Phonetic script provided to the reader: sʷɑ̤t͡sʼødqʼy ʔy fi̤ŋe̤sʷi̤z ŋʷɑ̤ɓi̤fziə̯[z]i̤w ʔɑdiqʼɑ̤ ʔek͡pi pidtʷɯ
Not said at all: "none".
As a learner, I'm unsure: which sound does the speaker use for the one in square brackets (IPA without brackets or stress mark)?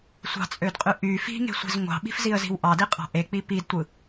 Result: z